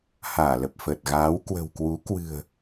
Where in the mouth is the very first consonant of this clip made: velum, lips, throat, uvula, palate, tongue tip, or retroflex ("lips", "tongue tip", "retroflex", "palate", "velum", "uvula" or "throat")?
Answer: throat